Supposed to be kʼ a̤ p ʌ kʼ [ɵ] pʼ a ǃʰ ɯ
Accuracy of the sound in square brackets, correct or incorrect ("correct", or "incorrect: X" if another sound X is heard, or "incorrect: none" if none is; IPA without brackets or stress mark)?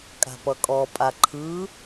incorrect: ɔ